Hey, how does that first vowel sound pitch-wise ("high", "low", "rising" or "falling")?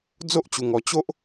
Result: high